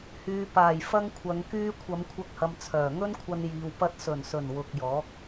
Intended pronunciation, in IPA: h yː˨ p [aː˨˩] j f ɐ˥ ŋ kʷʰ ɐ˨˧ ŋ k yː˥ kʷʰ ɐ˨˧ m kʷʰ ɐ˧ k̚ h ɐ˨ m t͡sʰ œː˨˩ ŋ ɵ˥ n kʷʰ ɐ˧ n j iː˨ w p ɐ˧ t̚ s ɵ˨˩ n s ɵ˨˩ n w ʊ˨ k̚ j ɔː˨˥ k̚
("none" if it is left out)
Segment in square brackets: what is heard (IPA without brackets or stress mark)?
aː˨˩